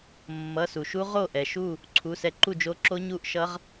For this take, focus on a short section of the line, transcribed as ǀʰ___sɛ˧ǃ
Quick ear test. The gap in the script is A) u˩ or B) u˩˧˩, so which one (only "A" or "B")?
B